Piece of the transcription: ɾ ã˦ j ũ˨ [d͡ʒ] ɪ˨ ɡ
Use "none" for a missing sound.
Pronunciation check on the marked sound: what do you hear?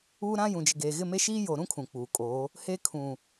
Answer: d͡ʒ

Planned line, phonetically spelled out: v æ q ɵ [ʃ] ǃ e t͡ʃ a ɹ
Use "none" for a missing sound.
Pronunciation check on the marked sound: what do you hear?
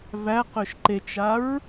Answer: ʃ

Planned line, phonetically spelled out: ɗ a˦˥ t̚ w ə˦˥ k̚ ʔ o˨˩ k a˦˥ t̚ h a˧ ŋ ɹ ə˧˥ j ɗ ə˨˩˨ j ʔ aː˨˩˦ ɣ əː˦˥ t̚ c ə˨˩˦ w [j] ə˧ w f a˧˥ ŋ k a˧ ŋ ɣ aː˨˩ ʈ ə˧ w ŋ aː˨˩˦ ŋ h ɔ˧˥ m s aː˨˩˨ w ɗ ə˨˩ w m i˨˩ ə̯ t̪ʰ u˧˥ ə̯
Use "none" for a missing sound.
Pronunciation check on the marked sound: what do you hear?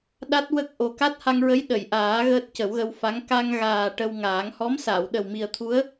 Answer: ɣ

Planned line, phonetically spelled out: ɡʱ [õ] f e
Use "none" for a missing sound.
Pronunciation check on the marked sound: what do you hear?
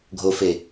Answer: o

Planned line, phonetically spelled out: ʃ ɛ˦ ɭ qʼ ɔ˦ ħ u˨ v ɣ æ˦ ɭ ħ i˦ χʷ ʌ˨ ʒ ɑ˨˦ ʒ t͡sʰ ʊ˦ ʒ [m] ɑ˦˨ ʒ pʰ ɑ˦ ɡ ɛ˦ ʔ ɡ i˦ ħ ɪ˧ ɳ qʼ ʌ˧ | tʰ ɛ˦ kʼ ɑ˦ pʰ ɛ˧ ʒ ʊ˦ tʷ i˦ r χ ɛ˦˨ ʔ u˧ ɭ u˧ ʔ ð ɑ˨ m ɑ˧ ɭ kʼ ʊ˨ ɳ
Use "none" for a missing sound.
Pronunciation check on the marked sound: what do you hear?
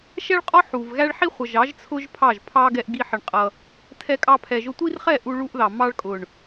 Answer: pʰ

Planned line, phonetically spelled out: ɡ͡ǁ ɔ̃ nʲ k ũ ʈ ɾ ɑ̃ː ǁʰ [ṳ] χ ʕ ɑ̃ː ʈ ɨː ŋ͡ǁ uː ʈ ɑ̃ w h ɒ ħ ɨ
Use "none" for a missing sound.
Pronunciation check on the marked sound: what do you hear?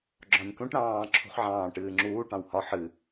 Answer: ṳ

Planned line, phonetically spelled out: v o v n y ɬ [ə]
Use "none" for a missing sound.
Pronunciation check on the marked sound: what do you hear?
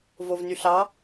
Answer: ɑ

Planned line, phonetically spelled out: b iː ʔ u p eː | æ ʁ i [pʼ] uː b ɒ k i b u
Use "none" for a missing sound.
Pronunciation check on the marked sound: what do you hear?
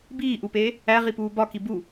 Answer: p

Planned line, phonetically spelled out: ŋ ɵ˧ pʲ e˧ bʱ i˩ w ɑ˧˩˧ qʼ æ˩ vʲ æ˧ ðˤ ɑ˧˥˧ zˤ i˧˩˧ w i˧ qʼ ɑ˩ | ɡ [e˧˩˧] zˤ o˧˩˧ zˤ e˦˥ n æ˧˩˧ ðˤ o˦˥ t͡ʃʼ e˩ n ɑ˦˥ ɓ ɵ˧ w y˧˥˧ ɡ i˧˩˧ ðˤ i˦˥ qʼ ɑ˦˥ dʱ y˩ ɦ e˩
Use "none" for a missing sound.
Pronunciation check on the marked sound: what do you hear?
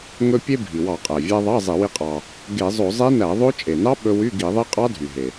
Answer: e˧˩˧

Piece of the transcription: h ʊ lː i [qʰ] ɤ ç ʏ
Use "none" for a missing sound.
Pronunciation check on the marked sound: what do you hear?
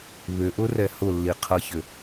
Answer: qʰ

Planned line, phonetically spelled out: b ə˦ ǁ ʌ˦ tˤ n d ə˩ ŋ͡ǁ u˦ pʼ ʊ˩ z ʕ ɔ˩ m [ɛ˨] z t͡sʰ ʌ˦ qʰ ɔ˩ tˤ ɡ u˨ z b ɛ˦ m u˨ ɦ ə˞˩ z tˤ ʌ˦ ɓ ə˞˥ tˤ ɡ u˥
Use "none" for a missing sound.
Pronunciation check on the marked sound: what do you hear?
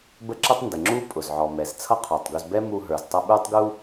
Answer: ɛ˩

